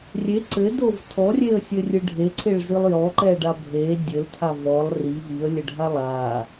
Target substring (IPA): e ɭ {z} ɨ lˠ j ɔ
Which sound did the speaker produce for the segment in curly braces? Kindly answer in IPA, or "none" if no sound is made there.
z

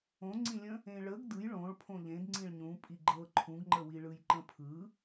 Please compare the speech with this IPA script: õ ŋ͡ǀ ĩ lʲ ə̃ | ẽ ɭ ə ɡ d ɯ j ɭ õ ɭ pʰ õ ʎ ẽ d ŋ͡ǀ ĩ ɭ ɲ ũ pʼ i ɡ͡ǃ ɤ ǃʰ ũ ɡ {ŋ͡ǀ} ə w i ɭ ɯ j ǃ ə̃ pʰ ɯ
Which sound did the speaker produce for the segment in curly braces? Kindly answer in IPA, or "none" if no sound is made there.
ŋ͡ǃ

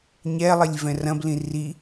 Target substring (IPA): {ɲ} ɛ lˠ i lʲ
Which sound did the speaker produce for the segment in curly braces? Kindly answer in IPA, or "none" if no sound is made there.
ɲ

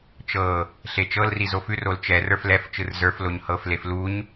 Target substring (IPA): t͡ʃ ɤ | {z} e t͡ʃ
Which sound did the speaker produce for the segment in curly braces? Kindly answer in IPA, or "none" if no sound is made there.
ɬ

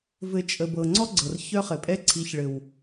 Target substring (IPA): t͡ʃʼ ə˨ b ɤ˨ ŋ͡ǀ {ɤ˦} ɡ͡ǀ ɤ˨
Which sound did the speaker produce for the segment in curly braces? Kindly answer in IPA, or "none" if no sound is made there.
ɔ˦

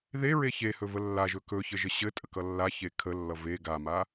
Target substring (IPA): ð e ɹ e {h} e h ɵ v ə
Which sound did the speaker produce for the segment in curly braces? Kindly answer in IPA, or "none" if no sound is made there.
ç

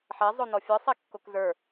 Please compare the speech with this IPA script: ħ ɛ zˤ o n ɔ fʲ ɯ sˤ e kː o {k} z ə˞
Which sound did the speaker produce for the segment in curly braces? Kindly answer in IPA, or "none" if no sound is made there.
k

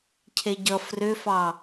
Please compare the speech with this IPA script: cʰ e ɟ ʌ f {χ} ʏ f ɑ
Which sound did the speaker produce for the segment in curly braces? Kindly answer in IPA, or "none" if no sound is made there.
r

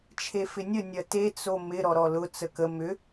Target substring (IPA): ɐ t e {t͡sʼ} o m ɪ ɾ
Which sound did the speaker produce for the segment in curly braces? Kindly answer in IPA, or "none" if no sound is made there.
t͡s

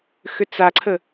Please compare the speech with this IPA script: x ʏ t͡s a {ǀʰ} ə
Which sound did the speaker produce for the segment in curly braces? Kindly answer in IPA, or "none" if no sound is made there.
ǀʰ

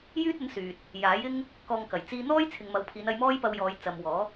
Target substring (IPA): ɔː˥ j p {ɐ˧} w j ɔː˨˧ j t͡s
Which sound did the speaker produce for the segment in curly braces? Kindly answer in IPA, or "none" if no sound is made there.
ɐ˧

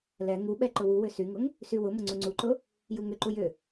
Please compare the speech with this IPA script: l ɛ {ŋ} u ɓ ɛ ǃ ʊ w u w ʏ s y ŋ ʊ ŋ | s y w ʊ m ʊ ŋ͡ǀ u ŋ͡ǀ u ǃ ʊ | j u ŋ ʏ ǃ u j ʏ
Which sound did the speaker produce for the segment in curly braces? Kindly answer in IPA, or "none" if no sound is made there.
ŋ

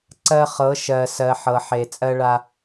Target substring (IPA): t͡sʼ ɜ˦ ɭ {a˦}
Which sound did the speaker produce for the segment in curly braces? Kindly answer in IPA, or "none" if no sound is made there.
a˦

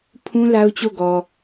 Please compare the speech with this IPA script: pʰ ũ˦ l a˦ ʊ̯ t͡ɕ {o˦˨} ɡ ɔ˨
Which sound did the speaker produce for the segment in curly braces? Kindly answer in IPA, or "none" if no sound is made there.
o˦˨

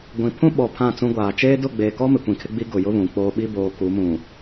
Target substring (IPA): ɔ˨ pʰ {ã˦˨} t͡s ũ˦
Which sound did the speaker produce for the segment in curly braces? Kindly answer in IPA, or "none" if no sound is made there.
ã˦˨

